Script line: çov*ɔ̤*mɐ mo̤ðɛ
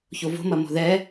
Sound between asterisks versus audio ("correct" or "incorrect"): incorrect